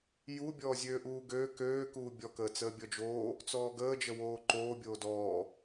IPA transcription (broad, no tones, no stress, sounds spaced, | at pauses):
j u bʲ ɔː zʲ øː ʔ uː ɡ øː k øː k uː bʲ ɔ k əː t͡s əː bʲ ɔ d͡ʒ oː | t͡s ɔː ɡ əː d͡ʒ ə w oː ǃ oː bʲ oː d ɔː